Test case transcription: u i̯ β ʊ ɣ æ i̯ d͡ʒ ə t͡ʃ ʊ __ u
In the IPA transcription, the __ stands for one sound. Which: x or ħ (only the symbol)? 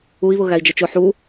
ħ